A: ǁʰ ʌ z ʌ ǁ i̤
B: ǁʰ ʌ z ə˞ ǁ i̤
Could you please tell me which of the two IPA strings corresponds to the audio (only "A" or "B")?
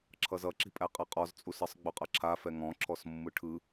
A